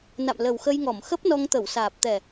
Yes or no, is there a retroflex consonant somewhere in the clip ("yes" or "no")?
no